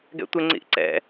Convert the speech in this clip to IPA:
ɡ ɛ̰ tʷ ɪ ŋ͡ǀ ḭ ʔ ǀ ɛ̰

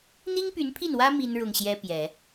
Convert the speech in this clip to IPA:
n̪ i˥ ŋ p y˧˥ n pʰ i˥˩ n w ä˥ m i˥ n ɻ ʊ˥˩ ŋ ɕ j ɛ˥ p j ɛ˨˩˦

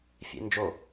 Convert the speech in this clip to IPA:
fʲ ḛ n d͡ʒ o

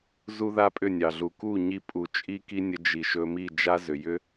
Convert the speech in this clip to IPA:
z u˦ ð a˦ pʼ ʏ˦˨ nʲ ɑ˨ ɮ u˨ k u˦˨ ɲ i˧ pʼ u˨ t͡ʃʼ i˦ k i˦ nʲ ə˧ d͡ʒ i˨ ʃ ɵ˧ m i˦˨ d͡ʒ a˦ z ʏ˨ j ʏ˦

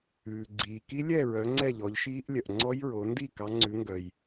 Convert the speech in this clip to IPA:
ʉː˩ ɡ͡ǀ iː˩ k i˦˥ lʲ ɛ˥˨ ɹ œ˩˧ ŋ͡ǀ ɛ˥˨ ʎ ɔ˩˧ ʎ ʃ iː˦˥ ʔ lʲ œ˩ ʔ ŋ͡ǀ ɔ˦˥ j ɹ o˩˧ n d i˥˨ k ɑ˩˧ ŋ͡ǀ ʉ˩˧ ŋ ɡ œ˩ j

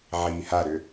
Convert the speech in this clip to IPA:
ʕ iː h a ɾ ʏ

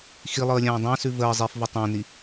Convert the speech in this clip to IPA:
x i lˠ ɤ ə̯ lʲ ãː dˤ ã s ʉ v əː zˤ i f v ə tˤ ã n i

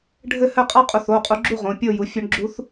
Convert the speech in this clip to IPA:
ɖʱ ɘ˦˨ h ɘ˦˨ qʼ a˧˥ qʼ u˩˧˩ θ o˩˧˩ qʼ u˩˥ ɡ͡ǁ u˦˨ ʁ õ˩˧˩ pʲ o˦˨ j u˩˥ fʲ ø˧˥ ɳ ɡ͡ǁ u˧˥ θ

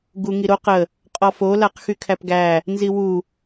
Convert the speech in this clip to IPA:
ɡ u ŋ i ɾ o q ə | qʼ ɔ f o l a q x y kʰ æ p ɡ æ | n z i w u

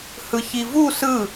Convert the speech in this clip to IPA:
h ɯ ç i v u s ɯ

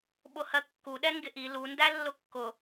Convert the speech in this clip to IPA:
ɓ ʊ h ɜ kː u ɗ ɛ ŋ ɡ ɪ ʔ i l u n d æ lː ʊ kː ʊ

